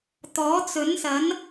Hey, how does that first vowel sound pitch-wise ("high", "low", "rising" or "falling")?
rising